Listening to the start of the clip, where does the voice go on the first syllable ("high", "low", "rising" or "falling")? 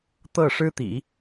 falling